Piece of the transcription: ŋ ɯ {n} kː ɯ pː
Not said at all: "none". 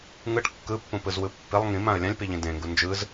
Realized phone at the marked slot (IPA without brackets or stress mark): ʈ